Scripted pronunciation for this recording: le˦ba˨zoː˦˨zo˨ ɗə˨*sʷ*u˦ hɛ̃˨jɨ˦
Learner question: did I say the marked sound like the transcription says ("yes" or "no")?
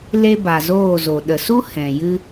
no